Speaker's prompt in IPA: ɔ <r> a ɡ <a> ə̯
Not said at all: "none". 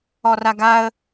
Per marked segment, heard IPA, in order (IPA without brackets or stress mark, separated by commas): r, a